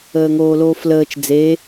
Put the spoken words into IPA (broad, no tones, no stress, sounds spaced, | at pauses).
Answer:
əː ŋ oː l oː f l əː t͡ʃ d͡z e